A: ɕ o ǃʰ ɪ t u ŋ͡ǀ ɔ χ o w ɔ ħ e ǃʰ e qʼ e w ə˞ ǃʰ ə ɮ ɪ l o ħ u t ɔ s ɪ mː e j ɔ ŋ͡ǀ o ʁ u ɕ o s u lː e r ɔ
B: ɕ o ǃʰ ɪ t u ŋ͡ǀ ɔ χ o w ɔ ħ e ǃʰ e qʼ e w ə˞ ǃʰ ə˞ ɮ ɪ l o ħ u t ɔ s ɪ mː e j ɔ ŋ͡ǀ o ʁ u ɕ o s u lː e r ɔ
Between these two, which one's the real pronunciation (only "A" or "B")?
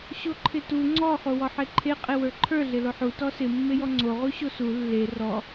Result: B